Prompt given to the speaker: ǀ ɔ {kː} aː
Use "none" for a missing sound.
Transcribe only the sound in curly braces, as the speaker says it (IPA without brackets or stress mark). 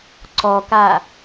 k